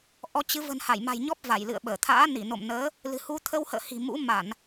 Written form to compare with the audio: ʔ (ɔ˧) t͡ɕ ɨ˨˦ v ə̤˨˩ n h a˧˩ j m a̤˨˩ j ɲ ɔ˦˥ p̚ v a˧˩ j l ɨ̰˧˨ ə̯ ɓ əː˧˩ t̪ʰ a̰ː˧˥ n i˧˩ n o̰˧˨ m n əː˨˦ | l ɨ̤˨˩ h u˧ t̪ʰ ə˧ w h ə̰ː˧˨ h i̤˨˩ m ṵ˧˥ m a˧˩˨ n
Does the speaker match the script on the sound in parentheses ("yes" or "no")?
yes